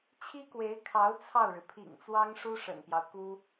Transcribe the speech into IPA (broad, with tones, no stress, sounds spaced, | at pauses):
t͡ɕʰ i˥ k w e˧˥ ɪ̯ kʰ ɑ˧˥ ʊ̯ t͡sʰ ɑ˥˩ ʊ̯ ɻ ɻ̩˩ pʰ ḭ˨˩ ŋ t͡s w ɑ˥ ŋ ʂ u˥ ʂ ə̰˨˩ n p j ɑ˦ ʊ̯ k u˥